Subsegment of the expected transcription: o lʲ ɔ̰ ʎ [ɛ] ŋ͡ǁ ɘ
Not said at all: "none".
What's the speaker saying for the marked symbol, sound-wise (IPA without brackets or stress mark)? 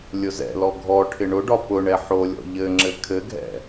ɘ